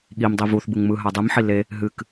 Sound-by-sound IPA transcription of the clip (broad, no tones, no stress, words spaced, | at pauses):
ɠim dˤivuθ bɯŋmɯ ɦadˤɨm ħile | ɦɨk